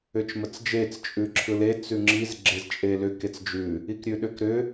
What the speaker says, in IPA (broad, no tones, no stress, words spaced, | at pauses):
ʏt͡ʃmət͡sd͡ʒet͡s t͡ʃʼʉǁʰɯle t͡sʉŋ͡ǁiz ɡ͡ǁezt͡ʃʼelʏk et͡sd͡ʒʉ | ikɾʲʉɗʏkɾʏ